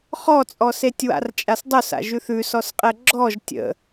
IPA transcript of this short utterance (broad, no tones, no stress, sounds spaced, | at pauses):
χ ɔ t͡sʼ ɔ s e tʲ w a̰ r t͡ʃʼ a s dˤ o s a̰ ʒ ʉ θ ʉ s ɔ s qʼ ɛ ɡ͡ǁ ɔ ʒ tʲ ə̰